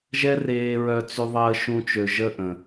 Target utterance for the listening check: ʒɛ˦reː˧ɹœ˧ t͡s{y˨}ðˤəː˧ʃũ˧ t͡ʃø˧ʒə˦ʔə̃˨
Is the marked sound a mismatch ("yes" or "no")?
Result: yes